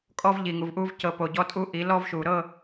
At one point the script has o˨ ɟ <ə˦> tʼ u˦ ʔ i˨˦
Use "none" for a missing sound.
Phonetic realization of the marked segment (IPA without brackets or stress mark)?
ɔ˦